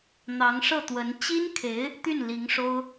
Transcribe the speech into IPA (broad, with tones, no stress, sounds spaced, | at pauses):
n̪ ɑ˧˥ ŋ ʂ ɤ˥˩ t̪ w ə˧˥ n t͡ɕ i˥ n kʰ e˧˥ ɪ̯ | t̪ y˥˩ n l i˧˥ ŋ ʂ o˥ ʊ̯